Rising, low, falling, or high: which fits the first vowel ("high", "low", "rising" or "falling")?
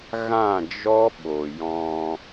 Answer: falling